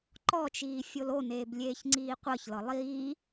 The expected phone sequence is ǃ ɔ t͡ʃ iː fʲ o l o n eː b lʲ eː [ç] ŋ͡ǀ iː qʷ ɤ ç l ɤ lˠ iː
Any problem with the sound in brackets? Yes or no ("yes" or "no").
no